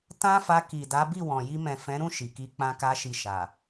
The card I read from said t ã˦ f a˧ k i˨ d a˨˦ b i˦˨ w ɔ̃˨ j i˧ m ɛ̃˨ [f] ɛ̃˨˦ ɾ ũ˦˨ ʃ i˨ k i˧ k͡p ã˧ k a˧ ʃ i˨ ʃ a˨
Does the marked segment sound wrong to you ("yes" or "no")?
no